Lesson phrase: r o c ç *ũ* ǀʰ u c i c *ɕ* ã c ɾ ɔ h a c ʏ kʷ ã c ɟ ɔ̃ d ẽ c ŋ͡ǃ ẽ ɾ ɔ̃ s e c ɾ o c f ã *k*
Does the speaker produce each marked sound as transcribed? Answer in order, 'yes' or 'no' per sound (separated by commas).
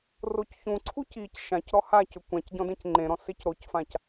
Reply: yes, no, no